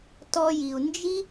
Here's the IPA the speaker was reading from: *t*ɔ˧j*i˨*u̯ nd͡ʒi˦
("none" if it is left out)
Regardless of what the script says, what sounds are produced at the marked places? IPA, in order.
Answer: t, i˨

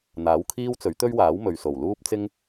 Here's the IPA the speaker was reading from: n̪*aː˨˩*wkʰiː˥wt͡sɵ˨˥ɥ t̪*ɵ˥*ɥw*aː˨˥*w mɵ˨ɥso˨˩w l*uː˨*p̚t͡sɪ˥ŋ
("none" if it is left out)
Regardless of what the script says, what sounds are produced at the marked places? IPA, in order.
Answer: aː˨˥, ɵ˥, aː˨˥, uː˥

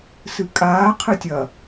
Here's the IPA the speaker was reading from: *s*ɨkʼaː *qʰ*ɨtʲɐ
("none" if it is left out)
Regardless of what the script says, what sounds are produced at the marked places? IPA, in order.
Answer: s, qʰ

